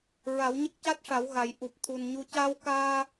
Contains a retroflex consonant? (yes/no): yes